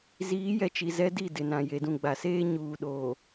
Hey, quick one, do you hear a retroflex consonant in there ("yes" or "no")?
no